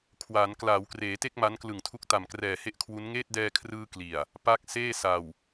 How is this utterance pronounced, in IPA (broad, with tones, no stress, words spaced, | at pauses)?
kʰwaː˩˦n klaː˩˦wkreː˩˦te˥˩k̚ ma˦˥nklɯ˨˩ŋtʰu˦˥k̚ ta˨˩mkrɛː˨˩he˥˩ʔkʰwu˦˥n ŋeː˥˩t̚dɛː˧kʰrɯː˧ kli˨˩a̯ | pa˦˥k̚ seː˥˩sa˨˩w